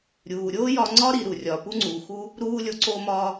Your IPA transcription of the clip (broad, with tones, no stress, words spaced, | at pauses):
ɾʲuː˩ɾʲoː˥jɒ˧ŋ͡ǀɒ˥ ɾi˧ɾu˩ rʲɒː˩pu˥ŋ͡ǀuː˩xu˥ | ɾuː˥ lʲo˧ǀoː˥mɒː˥